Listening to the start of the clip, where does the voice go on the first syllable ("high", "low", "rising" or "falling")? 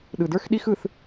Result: low